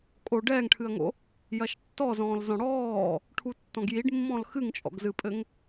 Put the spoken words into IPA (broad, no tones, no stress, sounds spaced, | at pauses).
kʼ o ɖ ɛː ŋ ʈʰ ɨ ɐ̯ ŋ o̰ | j ɐ ʃ tː ɔ z ɔ̃ː l z ɔ̃ ɽ ɔː | ʈʰ u tː ɔ̃ ɡ j i ɖ mː ɔ̃ l x ɨ ŋ t͡ʃʼ ɔ̰ ɡ z ɨ pʼ ɘ ŋ